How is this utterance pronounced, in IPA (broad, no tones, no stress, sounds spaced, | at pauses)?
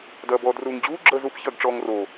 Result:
d ɐː b ɔː d r uː ŋ d͡ʑ uː ɡ͡ǁ əː z u p ç ɐː ɡ ʈ͡ʂ ɔː ŋ r o